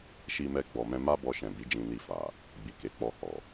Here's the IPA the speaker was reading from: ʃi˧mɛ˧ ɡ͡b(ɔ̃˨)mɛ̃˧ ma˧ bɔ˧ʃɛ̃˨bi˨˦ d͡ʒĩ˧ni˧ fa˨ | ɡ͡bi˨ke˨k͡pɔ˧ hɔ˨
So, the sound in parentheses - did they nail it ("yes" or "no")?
no